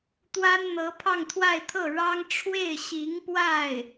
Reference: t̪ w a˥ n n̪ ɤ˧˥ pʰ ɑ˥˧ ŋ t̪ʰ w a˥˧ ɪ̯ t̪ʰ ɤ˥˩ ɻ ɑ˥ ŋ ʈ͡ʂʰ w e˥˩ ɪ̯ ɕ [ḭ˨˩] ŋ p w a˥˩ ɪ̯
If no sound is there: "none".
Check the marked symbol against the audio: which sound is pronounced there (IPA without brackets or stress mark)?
i˧˥